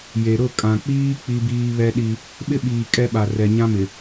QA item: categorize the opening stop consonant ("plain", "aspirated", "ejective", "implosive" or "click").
ejective